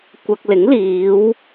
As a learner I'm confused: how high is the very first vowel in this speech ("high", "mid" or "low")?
low